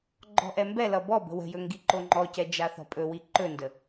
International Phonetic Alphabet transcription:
ɡ͡ǃ ɔ̤ ʔ ɛ m b ɛ l ʌ b ɔ b ə̤ w ə̤ j ɵ ŋ ɡ i ǃ o ŋ͡ǃ ɔ c ɛ d͡ʒ a θ ɔ̤ pʼ ɵ w i ǃ ɵ n d ə

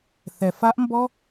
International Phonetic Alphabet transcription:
θ ɛ˩ f a˧˥ ʔ m b ɔ˥

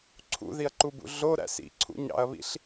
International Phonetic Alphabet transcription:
ǀʰ ṵ ð i ɐ̯ ǃ u b ṵ ɮ o ɾ æ̰ s ḭ ǀʰ ṵ ɲ ɑ̰ ɐ̯ β ḭ ɬ

